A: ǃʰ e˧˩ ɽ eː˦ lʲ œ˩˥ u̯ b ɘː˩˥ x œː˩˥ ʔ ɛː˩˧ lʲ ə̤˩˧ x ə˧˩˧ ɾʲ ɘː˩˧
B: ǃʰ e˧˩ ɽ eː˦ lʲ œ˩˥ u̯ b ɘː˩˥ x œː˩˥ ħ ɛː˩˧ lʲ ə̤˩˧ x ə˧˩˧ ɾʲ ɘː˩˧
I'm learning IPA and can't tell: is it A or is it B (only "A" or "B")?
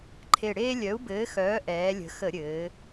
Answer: A